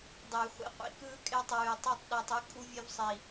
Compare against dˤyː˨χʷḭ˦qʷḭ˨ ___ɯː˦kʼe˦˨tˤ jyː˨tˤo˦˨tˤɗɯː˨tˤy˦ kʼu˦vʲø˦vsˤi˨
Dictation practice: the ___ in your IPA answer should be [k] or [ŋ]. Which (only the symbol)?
k